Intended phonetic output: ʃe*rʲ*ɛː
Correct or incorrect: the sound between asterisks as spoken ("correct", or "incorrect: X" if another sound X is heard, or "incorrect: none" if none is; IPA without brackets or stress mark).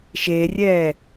correct